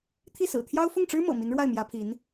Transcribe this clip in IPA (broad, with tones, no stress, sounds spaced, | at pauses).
t̪ʰ i˥˩ s ɹ̩˨˩ t̪ʰ j ɑ˥ ʊ̯ f ʊ˥˩ ŋ ʈ͡ʂ ɻ̩˥ m ɤ̰˨˩ m i˧˥ n ɻ w a˥˩ ɪ̯ m j ä˧˥ pʰ i˧˥ n